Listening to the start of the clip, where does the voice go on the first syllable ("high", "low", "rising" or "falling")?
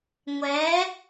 rising